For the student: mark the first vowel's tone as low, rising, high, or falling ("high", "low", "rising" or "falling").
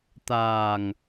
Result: low